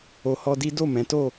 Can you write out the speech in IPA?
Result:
o˨ hɔ˧di˦ do˦˨ mɛ̃˨˦ to˦˨

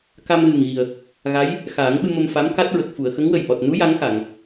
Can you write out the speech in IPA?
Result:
ka˧mɣɨ˨˩ŋ ɣi˨˩ə̯ | ɣa˧˥j | xaː˨˩˦ŋɓɨ˧ mə˧mfa˧˥mka˦˥t̚ɹə˨˩k̚ fu˨˩˨ə̯xə˧˥ŋ wə˨˩jʔɔ˨˩t̚nu˧˥ ja˧˥ŋxa˨˩˨ŋ

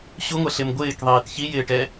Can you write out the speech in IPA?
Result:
ɕuŋʷɛɬɪm ɡʷɪːkðˤiːt çijɪːʈɛ

